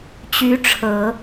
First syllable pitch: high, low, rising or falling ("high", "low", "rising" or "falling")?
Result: rising